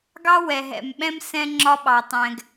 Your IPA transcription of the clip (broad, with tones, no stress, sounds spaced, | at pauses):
ɡ ɑ˦ w ɛ˨ ɦ ɛ̰˨ m ɓ ɛ̃˦ m s ɛ̃˦ ŋ͡ǁ ɒ˦ ɓ ɑ˨ tˤ ɛ̃˨ ɡ